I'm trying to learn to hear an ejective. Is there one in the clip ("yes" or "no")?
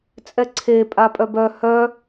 yes